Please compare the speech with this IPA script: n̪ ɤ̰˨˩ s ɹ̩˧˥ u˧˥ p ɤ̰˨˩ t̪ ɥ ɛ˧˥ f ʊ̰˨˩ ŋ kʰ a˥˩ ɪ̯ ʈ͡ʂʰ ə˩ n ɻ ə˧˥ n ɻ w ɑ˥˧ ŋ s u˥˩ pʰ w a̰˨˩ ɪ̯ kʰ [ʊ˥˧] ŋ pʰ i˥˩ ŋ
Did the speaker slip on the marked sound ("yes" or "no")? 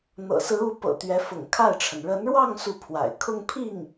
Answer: no